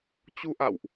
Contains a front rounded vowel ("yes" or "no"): no